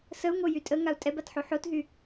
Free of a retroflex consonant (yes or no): yes